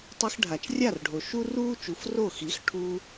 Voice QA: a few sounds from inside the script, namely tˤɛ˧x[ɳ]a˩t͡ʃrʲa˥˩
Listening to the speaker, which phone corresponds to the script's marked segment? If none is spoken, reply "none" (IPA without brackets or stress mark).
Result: ɖʱ